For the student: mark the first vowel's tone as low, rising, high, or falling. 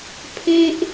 high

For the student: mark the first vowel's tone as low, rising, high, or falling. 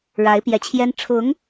rising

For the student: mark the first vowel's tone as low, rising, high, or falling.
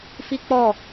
high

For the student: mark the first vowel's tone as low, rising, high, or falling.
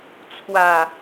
low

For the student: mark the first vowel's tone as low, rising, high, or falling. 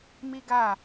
high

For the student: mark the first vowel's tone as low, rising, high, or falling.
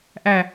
low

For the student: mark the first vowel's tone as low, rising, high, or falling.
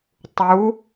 rising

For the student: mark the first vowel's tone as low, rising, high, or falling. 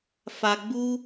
low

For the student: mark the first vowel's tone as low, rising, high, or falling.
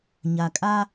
low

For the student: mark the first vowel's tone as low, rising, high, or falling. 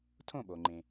falling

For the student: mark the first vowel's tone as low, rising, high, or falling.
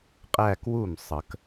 falling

